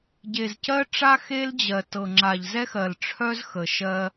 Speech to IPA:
ɟ e˨ z c ɜ˦ ʈ͡ʂ a˦ x e˦ l d͡ʑ ɜ˨ t ɤ˨ ŋ͡ǁ a˨ ʎ z ɛ˦ x ɜ˨ l ʈ͡ʂʰ œ˦ z x ə˨ ʃ ɜ˦

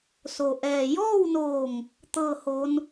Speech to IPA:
s o˩ ʔ ɛː˩ j ɔː˥˨ w n oː˧˩ ŋ | t̪ ɤː˥˨ h o˧˥ n

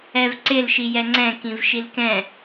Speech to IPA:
ɛ v ǀ ɪ l ʃ i j ɛ ŋ͡ǀ ɛ̃ k ĩ v ʃ i l k ɛ̃

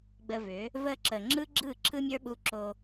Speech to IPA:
ɡ͡b ə˧ v ʏ˨˦ | v ə˧ ǁ ə˨ ŋ͡ǁ ɯ˦ ɡ͡ǁ ɯ˦˨ ǁʰ ɯ˦ mʲ ə˞˦ ɓ u˧ ǁ o˧

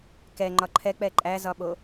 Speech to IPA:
k ɛ ŋ͡ǃ ɒ ǃʰ ɛ k͡p ɛ ǃʼ æ z ɒ ɓ o

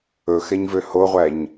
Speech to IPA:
ɵ x ɛ ɲ v ø h o ʁʷ æ ɲ

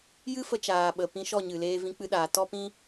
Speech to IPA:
j ɨ˦ f ə˧ t͡ʃ aː˨ ɓ ə˨ p ĩ˧ ʃ ɔ˦˨ ɲ ɨ˨ l eː˧ v ĩ˧ k͡p ɨ˧ ɗ aː˨ t ɔ˧ p ĩ˧

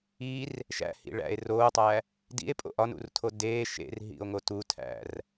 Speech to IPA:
i r | ʃ æ̰ h ḭ ɭ æ̰ e̯ r oː tˤ æ | d ḭ e̯ pʼ o̰ ʔ ɒ n ṵ r tʰ o d e ʃ ḛ r ɦ ḭ o̯ ŋ o t u tʰ æ̰ r

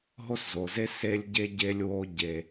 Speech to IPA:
ɦ o˥ s z o˩ z e˥ s e˦ lʲ ɟ e˥ ɟ e˦ lʲ w o˦ ɟ e˨

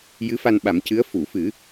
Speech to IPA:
j ɨ˧˥ f a˧ n ɓ a˨˩˦ m c ɨ˧˥ ə̯ f u˨˩˨ f ɨ˨˩˦

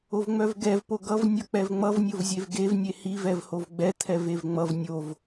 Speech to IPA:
o v ŋ͡m œ v ɡ ɛ v p o ɡ ʌ v nʲ ʌ k͡p ɛ v ŋ͡m ʌ v nʲ o v zʲ e v ɡ e v nʲ e h i v ɛ v h o v ɡ͡b ɛ t̪ʰ ɛ v e v ŋ͡m ʌ v nʲ o v

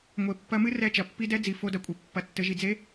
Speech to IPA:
ŋʷ e˩˧ pː ɐ˧˥ m ɨ˥ r ɛ˧˥ t͡ʃ ɐ˩ pː i˧ d ɛ˧˥ d͡z i˩ f o˧ d ɐ˧˥ kʷʼ e˩ pː ɐ˩˧ tː ɘ˩˧ ʒ i˩ d͡z e˧˥

